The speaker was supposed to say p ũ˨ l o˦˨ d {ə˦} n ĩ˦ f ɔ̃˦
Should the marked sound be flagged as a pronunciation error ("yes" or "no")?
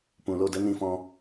no